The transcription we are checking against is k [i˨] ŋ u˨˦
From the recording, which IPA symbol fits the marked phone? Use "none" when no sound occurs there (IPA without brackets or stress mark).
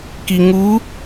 i˨